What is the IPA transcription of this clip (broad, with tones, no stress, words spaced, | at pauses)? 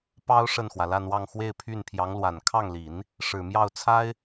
pɑ˥ʊ̯ ʂə˥˩nxwä˩la˥˧nwɑ˥˧ŋ xwe˥˧ɪ̯pʰy˥˩npʰjɑ˧˥ŋlwa˨˩n kʰɑ˥˩ŋli˨˩˦n | ʂɻ̩˨˩ mjɑ˥˩ʊ̯t͡sʰa˥ɪ̯